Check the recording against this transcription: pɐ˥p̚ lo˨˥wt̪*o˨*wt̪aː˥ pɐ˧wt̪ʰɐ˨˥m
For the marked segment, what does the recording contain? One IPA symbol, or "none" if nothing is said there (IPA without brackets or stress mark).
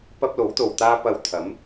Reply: o˨